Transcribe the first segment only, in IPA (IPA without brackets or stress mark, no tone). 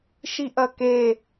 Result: ʃ